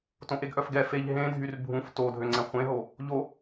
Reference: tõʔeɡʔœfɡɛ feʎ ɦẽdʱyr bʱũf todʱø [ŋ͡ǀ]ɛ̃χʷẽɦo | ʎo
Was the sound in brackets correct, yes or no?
yes